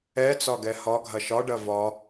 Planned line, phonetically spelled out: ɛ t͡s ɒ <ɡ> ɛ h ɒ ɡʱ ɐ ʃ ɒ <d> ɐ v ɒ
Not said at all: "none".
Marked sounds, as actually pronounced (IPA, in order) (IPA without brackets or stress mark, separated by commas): ɡ, ɖ